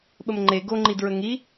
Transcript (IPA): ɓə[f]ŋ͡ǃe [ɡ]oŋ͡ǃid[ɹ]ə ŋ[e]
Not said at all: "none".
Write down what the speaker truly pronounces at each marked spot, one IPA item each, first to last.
m, ɡ, ɹ, i

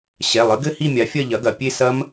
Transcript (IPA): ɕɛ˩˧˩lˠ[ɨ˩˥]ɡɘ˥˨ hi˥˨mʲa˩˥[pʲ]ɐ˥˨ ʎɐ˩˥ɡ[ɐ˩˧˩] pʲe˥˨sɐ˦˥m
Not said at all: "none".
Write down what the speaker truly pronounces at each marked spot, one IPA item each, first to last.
ɨ˩˥, fʲ, ɐ˩˧˩

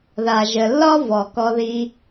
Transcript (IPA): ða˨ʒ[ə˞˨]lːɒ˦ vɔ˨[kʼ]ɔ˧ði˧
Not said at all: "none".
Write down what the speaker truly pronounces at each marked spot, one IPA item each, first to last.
ə˨, k

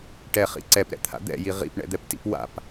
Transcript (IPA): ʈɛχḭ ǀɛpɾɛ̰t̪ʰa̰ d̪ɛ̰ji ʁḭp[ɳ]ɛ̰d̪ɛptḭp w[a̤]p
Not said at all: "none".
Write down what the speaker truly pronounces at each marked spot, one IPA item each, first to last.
ɳ, a̰

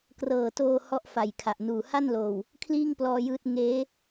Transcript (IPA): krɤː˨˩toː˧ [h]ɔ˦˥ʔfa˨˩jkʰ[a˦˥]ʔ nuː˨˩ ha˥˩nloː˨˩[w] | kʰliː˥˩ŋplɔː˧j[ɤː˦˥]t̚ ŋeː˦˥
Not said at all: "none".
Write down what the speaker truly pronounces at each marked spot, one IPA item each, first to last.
h, a˨˩, w, ɯː˦˥

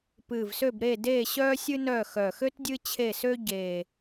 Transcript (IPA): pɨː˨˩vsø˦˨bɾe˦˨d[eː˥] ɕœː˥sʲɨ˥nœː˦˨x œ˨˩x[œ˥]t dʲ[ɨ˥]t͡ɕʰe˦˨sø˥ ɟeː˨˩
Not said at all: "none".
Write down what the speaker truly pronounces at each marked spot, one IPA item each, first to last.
eː˦˨, ø˥, ɨ˥

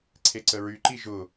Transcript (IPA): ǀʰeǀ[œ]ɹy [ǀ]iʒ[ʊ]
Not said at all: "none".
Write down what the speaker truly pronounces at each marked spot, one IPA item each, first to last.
ə, ǃ, ʊ

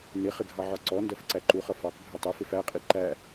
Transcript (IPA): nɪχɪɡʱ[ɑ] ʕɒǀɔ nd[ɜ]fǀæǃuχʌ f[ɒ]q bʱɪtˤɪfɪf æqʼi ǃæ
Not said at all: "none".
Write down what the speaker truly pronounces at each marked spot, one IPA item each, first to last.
ɑ, ɜ, ɑ

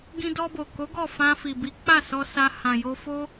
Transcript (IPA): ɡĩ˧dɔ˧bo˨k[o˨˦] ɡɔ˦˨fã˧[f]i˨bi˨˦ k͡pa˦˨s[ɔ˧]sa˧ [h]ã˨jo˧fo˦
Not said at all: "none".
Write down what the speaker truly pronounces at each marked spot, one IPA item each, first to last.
o˨˦, f, ɔ˧, h

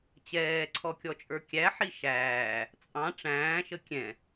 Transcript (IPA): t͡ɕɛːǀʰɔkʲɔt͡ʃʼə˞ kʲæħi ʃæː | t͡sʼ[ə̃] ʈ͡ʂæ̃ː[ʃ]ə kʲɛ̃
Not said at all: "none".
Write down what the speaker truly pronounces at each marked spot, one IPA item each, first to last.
ɑ̃, ʃ

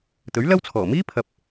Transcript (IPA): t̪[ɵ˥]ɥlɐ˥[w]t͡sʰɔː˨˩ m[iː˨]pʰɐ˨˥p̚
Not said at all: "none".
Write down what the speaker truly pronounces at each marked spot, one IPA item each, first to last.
ɵ˨˥, w, iː˥

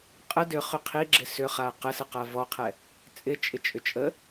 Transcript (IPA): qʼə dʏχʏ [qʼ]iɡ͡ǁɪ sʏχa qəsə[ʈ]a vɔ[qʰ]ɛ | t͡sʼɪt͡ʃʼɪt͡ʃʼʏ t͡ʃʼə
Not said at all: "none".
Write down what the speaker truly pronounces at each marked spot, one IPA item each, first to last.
qʰ, q, qʰ

